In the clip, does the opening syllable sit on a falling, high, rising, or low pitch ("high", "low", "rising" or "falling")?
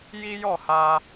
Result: high